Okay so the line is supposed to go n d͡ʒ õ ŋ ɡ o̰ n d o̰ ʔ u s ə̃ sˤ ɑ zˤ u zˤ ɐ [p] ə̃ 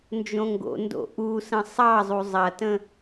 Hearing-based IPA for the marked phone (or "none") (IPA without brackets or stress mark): t